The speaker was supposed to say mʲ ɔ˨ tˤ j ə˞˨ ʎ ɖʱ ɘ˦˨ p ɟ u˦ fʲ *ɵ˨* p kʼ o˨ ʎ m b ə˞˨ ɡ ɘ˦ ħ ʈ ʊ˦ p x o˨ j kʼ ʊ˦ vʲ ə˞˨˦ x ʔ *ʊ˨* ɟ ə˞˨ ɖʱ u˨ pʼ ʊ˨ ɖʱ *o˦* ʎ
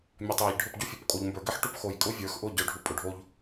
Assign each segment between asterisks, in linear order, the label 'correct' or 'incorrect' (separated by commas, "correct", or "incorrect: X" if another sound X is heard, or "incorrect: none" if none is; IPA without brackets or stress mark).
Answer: incorrect: o˨, incorrect: ʊ˦˨, correct